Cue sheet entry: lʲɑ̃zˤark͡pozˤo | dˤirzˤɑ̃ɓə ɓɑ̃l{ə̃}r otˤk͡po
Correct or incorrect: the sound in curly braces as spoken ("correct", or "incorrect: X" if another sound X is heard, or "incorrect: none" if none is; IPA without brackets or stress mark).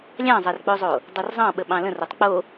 correct